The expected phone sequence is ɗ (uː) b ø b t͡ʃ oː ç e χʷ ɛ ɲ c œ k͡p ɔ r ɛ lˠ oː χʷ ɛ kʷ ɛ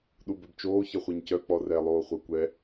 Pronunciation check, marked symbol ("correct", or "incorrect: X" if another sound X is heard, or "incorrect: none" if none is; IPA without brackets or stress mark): incorrect: u